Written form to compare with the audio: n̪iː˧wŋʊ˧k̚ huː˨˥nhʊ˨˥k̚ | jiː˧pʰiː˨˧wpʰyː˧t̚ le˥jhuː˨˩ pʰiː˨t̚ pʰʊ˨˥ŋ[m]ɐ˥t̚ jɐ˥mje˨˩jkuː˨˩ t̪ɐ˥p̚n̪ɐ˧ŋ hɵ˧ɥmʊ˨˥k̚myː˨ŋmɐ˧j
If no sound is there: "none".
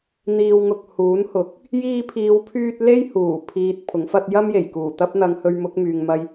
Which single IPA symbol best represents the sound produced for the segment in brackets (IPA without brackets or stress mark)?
f